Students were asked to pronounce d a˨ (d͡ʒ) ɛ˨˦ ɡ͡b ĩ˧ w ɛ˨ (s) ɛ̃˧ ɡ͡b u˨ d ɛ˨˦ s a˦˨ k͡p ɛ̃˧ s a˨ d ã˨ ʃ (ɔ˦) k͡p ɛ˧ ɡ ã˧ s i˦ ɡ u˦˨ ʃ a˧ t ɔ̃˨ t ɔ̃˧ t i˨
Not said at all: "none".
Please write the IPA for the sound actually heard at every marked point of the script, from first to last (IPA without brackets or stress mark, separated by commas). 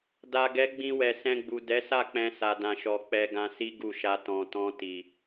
ɡ, s, ɔ˨